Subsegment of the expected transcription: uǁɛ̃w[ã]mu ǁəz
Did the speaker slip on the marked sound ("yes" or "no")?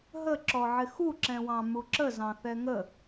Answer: yes